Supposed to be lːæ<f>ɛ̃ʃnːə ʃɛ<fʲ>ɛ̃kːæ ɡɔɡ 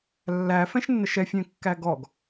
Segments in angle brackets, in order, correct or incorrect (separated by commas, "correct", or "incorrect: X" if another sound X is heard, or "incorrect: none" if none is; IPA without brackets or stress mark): correct, correct